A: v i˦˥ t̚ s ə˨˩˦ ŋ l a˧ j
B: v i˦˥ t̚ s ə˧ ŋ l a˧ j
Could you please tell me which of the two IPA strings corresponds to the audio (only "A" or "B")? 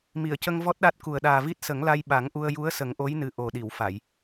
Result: A